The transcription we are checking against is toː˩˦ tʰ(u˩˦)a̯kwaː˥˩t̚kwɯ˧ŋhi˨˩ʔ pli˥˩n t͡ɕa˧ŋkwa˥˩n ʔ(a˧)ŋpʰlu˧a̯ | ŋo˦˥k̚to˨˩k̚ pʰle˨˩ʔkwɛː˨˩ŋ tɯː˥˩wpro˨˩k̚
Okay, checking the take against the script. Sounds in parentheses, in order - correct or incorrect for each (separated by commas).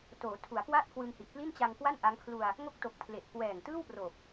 correct, incorrect